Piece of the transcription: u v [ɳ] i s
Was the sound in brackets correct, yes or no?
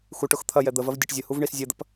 yes